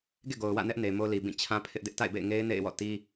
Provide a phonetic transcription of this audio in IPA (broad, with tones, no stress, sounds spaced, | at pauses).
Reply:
ɡ ḛ˦˨ ɡ o˨ ʊ̯ w ä̰˦˨ n ɛ˦ ʔ n e˨ m o˦ l i˨ b ĩ˦˨ t͡ɕʰ ã˦ pʰ ɪ˦ ʔ d ɪ˦ ʔ t a̰˦˨ ɪ̯ b ḛ˦˨ ɪ̯ ŋ e˦ ɪ̯ n ḛ˦˨ ɪ̯ w ɔ̰˦˨ t i˦